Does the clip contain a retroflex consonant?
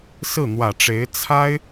yes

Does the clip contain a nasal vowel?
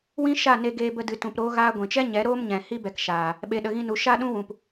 yes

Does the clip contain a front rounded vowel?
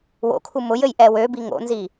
yes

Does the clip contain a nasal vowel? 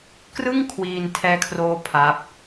no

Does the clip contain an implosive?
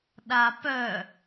yes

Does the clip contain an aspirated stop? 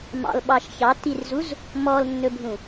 no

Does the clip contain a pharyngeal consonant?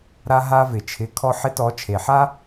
yes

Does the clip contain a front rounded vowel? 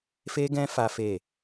no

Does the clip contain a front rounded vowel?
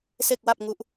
no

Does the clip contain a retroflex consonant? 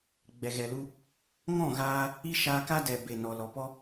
no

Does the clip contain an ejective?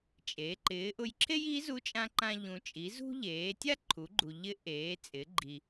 yes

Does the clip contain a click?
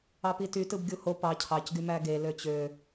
no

